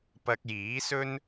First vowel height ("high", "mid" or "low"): low